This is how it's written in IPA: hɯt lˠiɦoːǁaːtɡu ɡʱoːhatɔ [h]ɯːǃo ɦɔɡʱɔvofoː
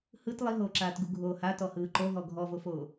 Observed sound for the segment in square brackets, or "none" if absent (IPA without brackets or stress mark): h